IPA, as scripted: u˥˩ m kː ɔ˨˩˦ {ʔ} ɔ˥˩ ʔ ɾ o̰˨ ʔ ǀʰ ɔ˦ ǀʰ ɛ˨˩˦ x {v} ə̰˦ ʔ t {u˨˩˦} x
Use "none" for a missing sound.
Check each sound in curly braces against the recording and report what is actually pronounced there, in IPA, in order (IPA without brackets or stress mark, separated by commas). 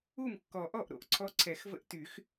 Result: ʔ, v, y˨˩˦